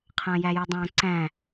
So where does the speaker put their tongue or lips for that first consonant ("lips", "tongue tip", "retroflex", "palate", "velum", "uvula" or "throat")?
uvula